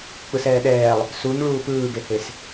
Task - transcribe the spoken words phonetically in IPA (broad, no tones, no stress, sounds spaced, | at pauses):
k͡p ɯ s ɛː ɗ ɛː lˠ | s u ɲ ɭ uː p ɯː ɡ e h e s